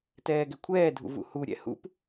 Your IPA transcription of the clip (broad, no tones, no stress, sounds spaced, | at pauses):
t ɛː ɡ ɛ kʷʰ ɛː dʱ ṵ v ṵ h u ɾʲ ɛ̰ h ṵ p